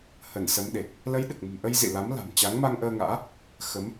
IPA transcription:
h ə˧˩ n s ə˨˦ m ɗ e˨˩ k̚ | l ə˨˦ j ɗ ɨ˨˩ k̚ m ə̤˨˩ m ʔ ə˧ j z ḭ˧˨ l a˨˦ m l a̤˨˩ m t͡ɕ a˨˦ ŋ m a˧ ŋ ʔ əː˧ ŋ a̰ː˧˥ | x ə˨˦ m

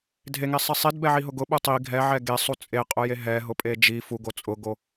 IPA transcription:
dʱ e ŋ e sˤ i sˤ i d b ɛ ʕ i ɦ ʊ ɡ ʊ ɓ u tˤ i ɡʱ ɛ ʕ ɛ ɡ e sˤ u t͡sʼ e qʼ ʊ j e ɦ ɛ ɦ ʊ pʼ e d͡ʒ i f u ɡ o t͡sʼ ʊ ɡ o

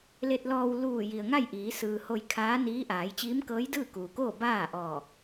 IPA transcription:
l e˧ t̚ l ɔː˧ w l uː˧˩ j i˩ ə̯ ŋ a˥˨ j ʔ iː˩˧ s ɯː˩ h o˧ j kʰ aː˧˥ n iː˧˥ ʔ aː˩˧ j t͡ɕ iː˧˥ m k ɤː˧˥ j d ɯː˥˨ k uː˩ k oː˥˨ b aː˥˨ ʔ ɔː˧˩

